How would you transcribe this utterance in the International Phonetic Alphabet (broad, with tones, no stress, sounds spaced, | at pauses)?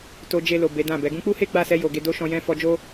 t o˧ d͡ʒ e˧ l o˨ b e˨˦ d ã˦˨ b ɛ˨˦ ɡ ũ˧ k͡p u˦ h e˦ ɡ͡b a˦˨ s ɛ˧ j o˨ ɡ e˧ d o˦ ʃ ɔ̃˧ j ɛ̃˦ f ɔ˧ d͡ʒ o˦